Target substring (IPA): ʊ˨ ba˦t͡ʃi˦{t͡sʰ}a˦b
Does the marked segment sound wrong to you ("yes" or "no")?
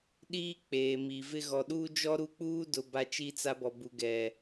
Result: yes